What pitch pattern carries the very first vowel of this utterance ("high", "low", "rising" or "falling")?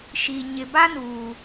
low